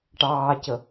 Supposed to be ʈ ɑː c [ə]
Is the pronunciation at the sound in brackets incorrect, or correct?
correct